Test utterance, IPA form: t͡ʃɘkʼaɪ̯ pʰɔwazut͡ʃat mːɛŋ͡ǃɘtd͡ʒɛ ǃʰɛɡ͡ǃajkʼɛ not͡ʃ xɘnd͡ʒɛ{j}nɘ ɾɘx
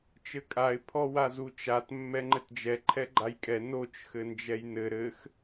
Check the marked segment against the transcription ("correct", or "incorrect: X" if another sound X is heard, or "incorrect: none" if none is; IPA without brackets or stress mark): correct